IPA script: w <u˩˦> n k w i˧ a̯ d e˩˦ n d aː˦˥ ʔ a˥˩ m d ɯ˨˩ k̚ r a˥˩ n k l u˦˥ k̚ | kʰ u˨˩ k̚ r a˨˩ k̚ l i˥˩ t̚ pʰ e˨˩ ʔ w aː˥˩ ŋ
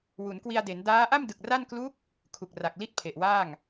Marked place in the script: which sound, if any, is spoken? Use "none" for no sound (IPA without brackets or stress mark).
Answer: u˩˦